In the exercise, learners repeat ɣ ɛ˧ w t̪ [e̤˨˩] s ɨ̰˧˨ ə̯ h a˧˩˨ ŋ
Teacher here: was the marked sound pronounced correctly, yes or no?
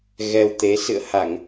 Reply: no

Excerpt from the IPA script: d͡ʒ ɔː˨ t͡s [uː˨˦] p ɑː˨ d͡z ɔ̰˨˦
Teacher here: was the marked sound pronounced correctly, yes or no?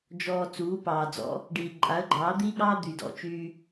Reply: yes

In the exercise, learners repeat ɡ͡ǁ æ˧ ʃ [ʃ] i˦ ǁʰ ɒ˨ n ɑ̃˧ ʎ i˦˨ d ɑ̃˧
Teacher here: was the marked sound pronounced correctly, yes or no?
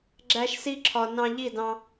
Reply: no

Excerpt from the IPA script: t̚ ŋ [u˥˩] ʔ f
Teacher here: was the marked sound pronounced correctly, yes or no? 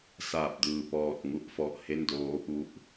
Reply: yes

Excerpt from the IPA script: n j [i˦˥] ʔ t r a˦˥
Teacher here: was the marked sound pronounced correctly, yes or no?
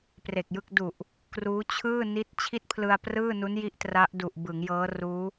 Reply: yes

